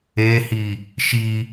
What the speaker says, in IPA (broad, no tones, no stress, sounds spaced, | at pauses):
e h i | ʃ i